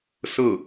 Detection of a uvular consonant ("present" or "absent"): absent